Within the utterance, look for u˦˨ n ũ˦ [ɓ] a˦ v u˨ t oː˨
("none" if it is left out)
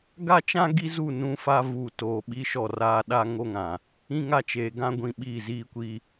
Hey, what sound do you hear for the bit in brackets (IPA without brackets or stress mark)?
f